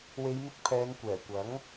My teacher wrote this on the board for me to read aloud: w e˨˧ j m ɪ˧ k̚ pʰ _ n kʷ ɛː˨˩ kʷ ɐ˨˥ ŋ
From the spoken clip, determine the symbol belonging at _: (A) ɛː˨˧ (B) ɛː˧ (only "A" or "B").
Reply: A